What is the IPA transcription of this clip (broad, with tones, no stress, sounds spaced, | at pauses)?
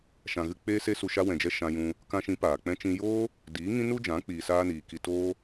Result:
ʃ ã˨ ɣ ɨ˧ k͡p eː˦ s e˦ s u˧ ʃ a˧ w ɛ̃˨ d͡ʒ ɛ˧ ʃ ã˧ j ũ˧ | k ã˧ ʃ ĩ˨˦ p aː˨ k͡p ɛ̃˧ t͡ʃ ĩ˧ j oː˦ | d iː˨˦ ŋ ĩ˦ n u˦ d͡ʒ ã˨˦ k͡p iː˧ s aː˦ n iː˧ k i˧ t oː˦